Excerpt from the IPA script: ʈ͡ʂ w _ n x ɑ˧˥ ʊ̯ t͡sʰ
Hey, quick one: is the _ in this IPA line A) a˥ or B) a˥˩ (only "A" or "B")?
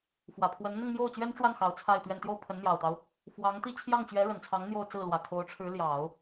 B